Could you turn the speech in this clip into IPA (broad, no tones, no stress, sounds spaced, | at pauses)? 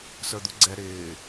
s ə˞ d̪ u ɡ͡ǀ ɛ ɾ ɪː